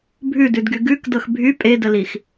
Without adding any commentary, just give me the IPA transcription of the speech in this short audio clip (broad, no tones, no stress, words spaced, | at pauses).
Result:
bʱʉdʉdɡy ɡʉkdɤx bʱy pʼedəlix